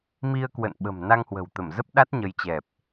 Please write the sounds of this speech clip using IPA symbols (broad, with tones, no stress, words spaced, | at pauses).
mi˧ə̯kwə̰˧˨n ɓə̤˨˩m na˧ŋhwə̤˨˩wt̪ə˧˩m zə˦˥p̚ɗa˦˥t̚ɲə˨˦jt͡ɕɛ˨˩p̚